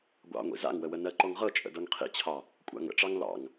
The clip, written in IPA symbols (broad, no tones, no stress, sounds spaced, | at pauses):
ɡʷ ɑ̰ ŋʷ ḭ z a̰ ŋ w ə w ə n ɜ ǃ ɔ ŋ ʁ ɤ t͡ʃʼ ə̰ d ɤ ŋ qʰ ḭ t͡ɕʰ ɑ | kʷʼ a̰ ŋ ə̰ ʈ͡ʂ ɑ ŋ l ɑ̰ ŋ